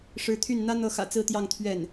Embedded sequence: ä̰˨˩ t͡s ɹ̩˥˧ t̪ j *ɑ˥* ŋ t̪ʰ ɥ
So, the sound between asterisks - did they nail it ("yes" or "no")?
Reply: no